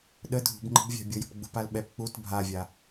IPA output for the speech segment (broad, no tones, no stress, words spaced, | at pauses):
ɗə dʱṳbŋ͡ǃə̤bvʲa̤ bʲʊjə̤pɡ͡bṳpal ɓɛp k͡put bʱavʲa